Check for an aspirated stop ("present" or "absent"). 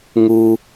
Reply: absent